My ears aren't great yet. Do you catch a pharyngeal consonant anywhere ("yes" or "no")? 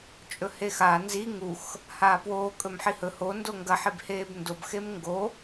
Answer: yes